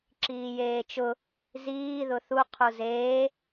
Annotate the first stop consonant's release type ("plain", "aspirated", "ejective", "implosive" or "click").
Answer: click